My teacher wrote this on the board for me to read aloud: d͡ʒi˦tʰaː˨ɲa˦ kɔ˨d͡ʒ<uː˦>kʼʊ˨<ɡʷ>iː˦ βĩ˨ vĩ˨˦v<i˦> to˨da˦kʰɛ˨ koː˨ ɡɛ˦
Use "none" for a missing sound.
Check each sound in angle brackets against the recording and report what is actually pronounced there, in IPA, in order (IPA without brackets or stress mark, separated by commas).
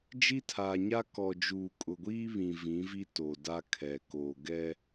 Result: uː˨, ɡʷ, i˦